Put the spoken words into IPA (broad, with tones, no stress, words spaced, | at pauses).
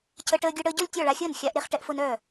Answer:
cʰə˧ ʈəː˧ɡʲœ˧ɽəː˧ɟɔ˥˩lʲ tʲɔ˥˩ɭa˧xʲəː˥˩n xʲa˧ʔɾe˧χ ʈɛ˧ʔfʊ˧nœː˥˩